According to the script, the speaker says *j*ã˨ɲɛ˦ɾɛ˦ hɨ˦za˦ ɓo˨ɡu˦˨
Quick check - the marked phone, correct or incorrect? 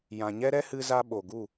correct